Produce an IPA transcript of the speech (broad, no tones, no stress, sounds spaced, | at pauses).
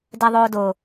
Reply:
d ɛ ðˤ oː d o